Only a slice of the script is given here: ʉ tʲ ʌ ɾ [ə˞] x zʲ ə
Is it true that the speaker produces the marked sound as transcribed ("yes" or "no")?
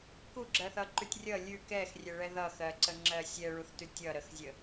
no